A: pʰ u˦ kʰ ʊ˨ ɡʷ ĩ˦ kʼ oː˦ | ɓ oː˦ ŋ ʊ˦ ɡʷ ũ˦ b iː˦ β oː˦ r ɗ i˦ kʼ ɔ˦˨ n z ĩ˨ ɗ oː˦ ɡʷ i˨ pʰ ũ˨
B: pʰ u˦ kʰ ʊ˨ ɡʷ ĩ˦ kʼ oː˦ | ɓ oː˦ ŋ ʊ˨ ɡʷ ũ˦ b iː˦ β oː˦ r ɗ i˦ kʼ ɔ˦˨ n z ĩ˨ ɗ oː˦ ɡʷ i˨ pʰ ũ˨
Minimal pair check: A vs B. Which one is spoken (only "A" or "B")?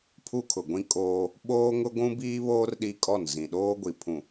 A